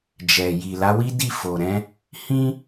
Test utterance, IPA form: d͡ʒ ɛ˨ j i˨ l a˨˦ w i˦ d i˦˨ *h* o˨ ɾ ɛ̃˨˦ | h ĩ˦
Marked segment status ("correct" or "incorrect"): incorrect